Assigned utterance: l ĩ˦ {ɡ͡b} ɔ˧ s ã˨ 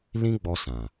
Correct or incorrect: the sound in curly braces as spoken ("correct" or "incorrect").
correct